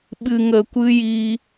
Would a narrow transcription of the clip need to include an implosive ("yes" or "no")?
yes